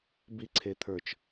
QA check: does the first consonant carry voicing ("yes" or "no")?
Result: yes